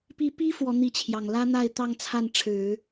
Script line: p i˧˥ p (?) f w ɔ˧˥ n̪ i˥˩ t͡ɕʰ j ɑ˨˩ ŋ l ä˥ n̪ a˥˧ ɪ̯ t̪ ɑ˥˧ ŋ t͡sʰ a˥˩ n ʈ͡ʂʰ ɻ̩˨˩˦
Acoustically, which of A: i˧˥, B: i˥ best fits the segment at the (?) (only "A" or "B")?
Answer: B